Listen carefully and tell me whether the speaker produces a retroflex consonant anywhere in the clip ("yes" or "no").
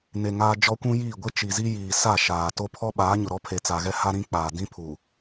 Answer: no